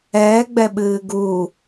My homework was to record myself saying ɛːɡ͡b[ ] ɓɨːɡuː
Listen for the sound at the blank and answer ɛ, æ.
ɛ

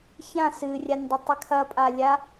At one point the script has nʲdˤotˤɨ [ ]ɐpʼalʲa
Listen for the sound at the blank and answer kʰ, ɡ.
kʰ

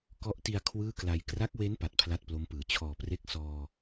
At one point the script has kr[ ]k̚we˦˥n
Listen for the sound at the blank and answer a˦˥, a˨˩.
a˦˥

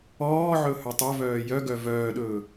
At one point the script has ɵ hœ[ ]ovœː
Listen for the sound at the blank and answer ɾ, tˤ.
tˤ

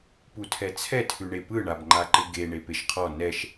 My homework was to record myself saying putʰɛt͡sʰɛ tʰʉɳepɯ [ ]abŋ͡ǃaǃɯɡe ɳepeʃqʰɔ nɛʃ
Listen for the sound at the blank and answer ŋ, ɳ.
ɳ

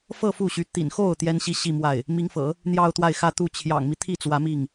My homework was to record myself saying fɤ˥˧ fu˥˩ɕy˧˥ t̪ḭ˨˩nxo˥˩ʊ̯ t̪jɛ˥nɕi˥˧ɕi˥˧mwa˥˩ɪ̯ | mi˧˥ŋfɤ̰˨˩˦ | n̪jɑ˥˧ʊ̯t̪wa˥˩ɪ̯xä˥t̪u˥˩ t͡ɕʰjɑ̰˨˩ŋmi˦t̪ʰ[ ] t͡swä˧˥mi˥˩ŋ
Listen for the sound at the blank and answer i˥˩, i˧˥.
i˥˩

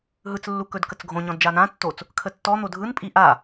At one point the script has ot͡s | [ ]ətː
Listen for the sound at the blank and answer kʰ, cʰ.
kʰ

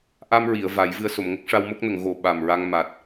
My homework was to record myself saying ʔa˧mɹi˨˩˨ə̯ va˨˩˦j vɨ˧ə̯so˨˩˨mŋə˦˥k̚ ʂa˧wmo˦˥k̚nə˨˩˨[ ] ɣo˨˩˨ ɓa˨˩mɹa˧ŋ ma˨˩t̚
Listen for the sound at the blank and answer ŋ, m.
ŋ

